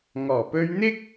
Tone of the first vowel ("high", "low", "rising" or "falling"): low